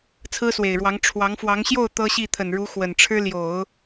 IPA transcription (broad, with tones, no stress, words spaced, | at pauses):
t͡sʰɹ̩˥swe˨˩ɪ̯ɻwɑ˧˥ŋ ʈ͡ʂʰwɑ˧˥ŋfwɑ˧˥ŋ ɕjo˥˩ʊ̯ t̪ɤ˥ɕi˥˩ t̪ʰə˨˩nɻu˧˥ xwə˨˩nʈ͡ʂʰɻ̩˥ ljo˨˩˦ʊ̯